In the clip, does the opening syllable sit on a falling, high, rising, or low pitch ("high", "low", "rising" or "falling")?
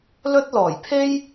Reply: high